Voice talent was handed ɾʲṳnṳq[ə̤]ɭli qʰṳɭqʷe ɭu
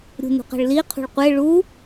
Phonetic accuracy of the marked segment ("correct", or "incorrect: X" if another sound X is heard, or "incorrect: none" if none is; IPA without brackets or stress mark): incorrect: ɛ̤